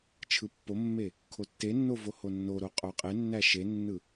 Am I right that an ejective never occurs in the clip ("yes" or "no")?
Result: no